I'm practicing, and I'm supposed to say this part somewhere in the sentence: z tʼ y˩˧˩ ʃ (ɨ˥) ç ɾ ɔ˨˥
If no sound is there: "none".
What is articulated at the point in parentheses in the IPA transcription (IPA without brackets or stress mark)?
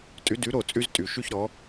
y˥